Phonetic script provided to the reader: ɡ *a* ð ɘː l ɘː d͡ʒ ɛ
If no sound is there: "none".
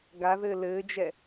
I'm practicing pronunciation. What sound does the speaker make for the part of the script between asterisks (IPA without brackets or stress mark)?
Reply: a